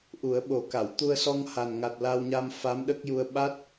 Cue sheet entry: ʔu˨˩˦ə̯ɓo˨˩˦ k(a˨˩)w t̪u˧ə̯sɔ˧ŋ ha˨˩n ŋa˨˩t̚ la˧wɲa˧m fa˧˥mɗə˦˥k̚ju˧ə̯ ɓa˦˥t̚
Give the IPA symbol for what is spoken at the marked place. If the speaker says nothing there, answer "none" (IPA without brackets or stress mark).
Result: a˨˩˨